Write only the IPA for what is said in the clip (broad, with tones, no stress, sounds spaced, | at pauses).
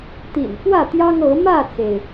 t̪ ḭ˨˩ n f w ä˥˨ t̪ j ɑ˦ ŋ ɤ˨˦ m ä˥˨ t͡s e˩ ɪ̯